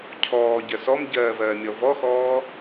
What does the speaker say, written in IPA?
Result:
cʰɔːɟɜ sɔmɟɜːvɜːmʲɔ vɔxɔː

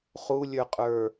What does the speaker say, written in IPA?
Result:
χulʲə˞qʼə˞

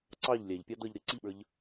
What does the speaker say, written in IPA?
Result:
ǀɑʎ lʲæʎpʲɑ dʌʎ ɾɪ ǀiɓə˞ʎ

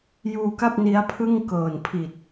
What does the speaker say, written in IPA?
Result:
juː˧ka˥˩p̚ ni˦˥a̯pʰɯ˥˩ŋ kɤː˨˩npʰi˨˩t̚

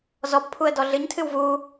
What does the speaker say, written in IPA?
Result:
zɔbpʰuə̯ dɔɮɨɲtʰɨw vu

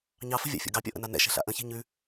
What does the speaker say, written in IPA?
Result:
ɲɑfə̤vʲa̰fʲɔ̰ ɡɑpʲɔ̰ʔə̰na nɛ̰ʃɛ̤ɬa̰ ʔə̃çe̤ ɲʉ

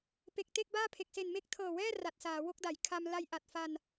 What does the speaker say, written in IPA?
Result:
pe˨˩k̚te˥˩k̚baː˥˩pʰe˨˩k̚ se˨˩nme˦˥k̚tʰɤː˨˩wɛː˥˩ ra˨˩t̚saː˩˦wo˥˩k̚da˩˦j kʰa˧m la˧jʔa˨˩t̚fa˧n

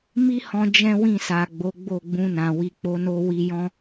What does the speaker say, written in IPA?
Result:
mi˦hɔ̃˧ d͡ʒɛ̃˦wĩ˦˨sa˨ɡ͡bo˨˦ ɡ͡bo˦˨ɡ͡bũ˧nã˨ wi˨k͡po˨˦no˧ wi˧jɔ̃˦

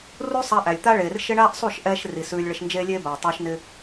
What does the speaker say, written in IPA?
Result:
ru˦ sˤa˧ʔæ˨lʲt̪a˦ɭeː˨r ʃɪ˦ɳaː˦ʔsˤu˦˨ʃ ʔɛː˦ʃ ri˨sʉː˧lʲ ɭɪ˧ʃnd͡ʒeː˦lʲeː˦baː˨ tˤoː˦ʃnɪ˦

